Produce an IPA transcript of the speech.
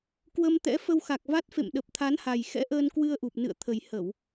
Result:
k w ə˧ m t̪ ɛ̰˧˥ f ə˧ w x a˨˩ k̚ v a˦˥ t̚ f ḛ˧˨ m ɗ ə˨˩ p̚ t̪ʰ a˨˦ n h a˨˩ j x ɛ̰˧˥ ʔ əː˧ n k w ɨ˧ ə̯ ʔ u˨˩ p̚ n ɨ̰˧˨ ə̯ t̪ʰ ə˨˩ j h ə˧˩˨ w

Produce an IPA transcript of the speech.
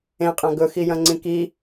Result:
ẽ qʼ ã ɡ ɵ x i j ɐ̃ ŋ͡ǀ ĩ k i

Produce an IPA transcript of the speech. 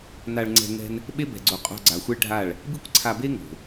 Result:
n a˧ ɭ ŋ͡ǀ ɛ̤˧ ŋ ɛ̤˦ n | ɓ e˦ b ɛ̤˨ ɡ͡ǀ o˨ qʼ o̤˧ ɡ͡ǀ a˨ xʷ e˦ ɭ ɖʱ a˦˨ ɭ | b i˦ kʷ ǀʰ a˧ b e˦ ŋ o̤˨

